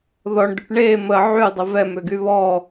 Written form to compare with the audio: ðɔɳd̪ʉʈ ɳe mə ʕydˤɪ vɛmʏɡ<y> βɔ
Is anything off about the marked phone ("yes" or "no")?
no